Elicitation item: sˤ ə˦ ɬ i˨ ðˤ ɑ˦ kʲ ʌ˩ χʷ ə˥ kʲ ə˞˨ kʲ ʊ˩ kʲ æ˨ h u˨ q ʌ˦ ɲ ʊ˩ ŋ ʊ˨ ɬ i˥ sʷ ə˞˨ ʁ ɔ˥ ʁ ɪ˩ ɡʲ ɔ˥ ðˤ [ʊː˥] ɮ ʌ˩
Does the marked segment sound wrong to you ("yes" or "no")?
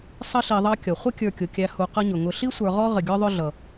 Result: yes